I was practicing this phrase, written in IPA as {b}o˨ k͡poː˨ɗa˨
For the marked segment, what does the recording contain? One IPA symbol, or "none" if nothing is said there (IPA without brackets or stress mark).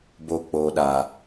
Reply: b